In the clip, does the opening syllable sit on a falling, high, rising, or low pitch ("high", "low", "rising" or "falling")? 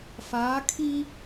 rising